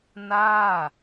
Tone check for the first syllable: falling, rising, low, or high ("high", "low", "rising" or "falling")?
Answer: falling